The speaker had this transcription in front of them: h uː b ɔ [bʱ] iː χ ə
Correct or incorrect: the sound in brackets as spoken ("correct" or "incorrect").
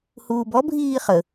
correct